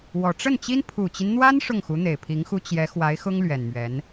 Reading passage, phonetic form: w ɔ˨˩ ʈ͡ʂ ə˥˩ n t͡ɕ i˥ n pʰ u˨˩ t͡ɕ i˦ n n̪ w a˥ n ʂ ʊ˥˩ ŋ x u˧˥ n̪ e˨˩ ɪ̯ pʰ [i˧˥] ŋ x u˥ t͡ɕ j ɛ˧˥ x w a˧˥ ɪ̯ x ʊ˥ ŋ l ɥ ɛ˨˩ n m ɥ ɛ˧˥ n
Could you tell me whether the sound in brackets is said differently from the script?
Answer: no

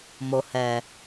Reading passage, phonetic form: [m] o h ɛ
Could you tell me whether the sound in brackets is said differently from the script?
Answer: no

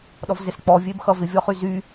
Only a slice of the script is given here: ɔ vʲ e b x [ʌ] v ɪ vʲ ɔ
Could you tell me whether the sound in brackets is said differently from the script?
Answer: no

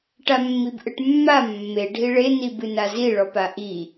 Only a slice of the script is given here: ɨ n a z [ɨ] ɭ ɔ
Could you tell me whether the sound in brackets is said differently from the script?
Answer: yes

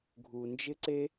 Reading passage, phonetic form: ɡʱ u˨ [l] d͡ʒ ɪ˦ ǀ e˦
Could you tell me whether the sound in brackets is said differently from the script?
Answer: yes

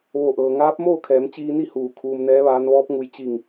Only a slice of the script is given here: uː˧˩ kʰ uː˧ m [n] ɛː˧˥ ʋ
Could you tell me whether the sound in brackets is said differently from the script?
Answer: no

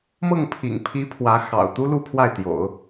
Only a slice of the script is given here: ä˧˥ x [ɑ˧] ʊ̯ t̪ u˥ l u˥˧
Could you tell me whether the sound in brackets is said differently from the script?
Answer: yes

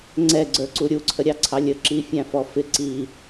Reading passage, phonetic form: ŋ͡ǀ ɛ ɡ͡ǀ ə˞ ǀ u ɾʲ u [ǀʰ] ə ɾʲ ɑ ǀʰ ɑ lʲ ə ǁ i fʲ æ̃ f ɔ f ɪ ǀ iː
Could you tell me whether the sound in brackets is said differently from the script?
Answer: no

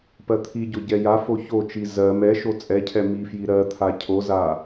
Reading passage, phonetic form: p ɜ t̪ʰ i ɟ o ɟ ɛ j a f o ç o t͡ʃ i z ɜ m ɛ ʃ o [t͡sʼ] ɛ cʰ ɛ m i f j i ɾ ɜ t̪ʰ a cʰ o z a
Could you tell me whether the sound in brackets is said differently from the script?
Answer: no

